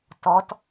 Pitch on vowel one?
rising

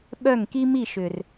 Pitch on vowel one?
falling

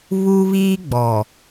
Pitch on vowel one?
high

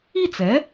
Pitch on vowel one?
falling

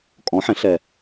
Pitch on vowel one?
rising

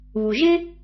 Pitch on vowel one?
low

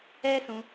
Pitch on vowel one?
high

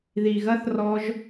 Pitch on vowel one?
low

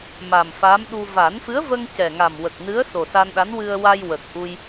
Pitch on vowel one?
low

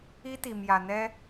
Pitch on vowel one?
high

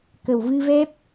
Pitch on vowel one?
low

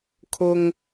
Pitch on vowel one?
low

